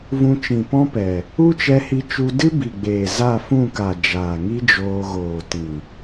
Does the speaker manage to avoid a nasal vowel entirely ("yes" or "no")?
no